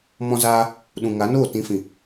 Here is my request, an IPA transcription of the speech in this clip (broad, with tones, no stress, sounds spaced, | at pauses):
m ɔ̃˦ z aː˦ | ɗ ũ˨ ŋ a˨˦ n oː˦˨ t ĩ˨˦ f ĩ˨